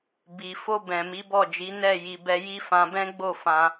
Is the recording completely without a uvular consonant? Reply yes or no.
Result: yes